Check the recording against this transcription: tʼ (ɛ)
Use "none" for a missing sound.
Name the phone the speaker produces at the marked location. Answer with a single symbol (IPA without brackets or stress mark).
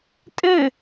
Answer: ɘ